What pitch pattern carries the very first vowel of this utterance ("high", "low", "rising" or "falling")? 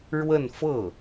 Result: falling